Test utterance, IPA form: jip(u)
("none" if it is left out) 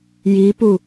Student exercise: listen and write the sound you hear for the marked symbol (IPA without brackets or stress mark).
u